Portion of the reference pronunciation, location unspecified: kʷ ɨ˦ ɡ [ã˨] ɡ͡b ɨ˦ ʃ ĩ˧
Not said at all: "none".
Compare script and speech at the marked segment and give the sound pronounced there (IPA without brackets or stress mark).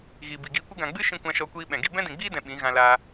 ã˨